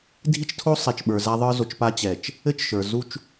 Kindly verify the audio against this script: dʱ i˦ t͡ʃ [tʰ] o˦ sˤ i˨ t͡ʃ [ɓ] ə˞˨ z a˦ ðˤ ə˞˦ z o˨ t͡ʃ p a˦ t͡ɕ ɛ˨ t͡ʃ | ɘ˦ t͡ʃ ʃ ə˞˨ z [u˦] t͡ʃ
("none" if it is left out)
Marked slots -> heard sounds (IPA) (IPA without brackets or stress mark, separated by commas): tʰ, ɓ, u˦